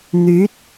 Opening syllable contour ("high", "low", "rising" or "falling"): rising